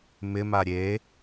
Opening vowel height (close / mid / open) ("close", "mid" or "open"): close